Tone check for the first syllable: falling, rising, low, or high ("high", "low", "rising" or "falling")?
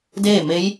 falling